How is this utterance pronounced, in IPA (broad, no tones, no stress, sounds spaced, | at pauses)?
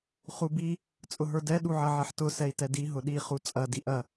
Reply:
χ u b i | t͡sʼ ʊ ɦ ə˞ d ɛ ɗ u ʕ ɐ ʕ ɛ ħ t ʊ s ɛ i̯ t ɛ d i ɦ ʊ ɗ i χ u t͡sʼ ɐ d i ʔ ɐ